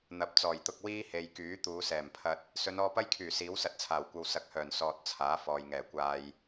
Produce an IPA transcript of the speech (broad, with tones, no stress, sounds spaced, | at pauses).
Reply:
n̪ ɐ˨˥ p̚ t͡s ɔː˨˩ j t̪ ʊ˧ k̚ w iː˥ h e˨ j k yː˨˥ t̪ uː˨˧ s ɛː˨˩ m pʰ ɐ˧ t̚ | s ɵ˨˧ n ɔː˧ p ɐ˥ j kʰ yː˨˩ s iː˨˥ w s ɐ˧ t̚ t͡sʰ aː˨˩ w kʷ ɐ˧ w s ɐ˨ k̚ h œː˨˩ n s ɔː˨ t̚ t͡sʰ aː˨˥ f ɔː˨ j ŋ ɛː˨˩ kʷ aː˧ j